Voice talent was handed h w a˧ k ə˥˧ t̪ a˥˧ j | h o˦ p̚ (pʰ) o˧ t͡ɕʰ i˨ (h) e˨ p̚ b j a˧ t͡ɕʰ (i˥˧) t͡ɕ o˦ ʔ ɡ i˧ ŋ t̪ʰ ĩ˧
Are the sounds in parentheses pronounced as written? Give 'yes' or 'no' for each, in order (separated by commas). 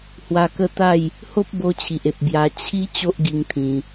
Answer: no, no, no